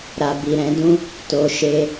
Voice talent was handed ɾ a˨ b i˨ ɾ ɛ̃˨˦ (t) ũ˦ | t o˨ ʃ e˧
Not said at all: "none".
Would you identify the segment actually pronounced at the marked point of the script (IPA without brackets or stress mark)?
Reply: d